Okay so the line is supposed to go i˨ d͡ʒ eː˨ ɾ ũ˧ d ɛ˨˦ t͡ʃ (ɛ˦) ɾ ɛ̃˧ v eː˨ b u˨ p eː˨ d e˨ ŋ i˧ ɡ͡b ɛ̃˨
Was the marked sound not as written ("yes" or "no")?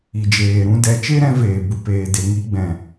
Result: yes